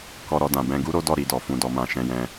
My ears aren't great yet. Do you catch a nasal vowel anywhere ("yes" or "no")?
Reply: yes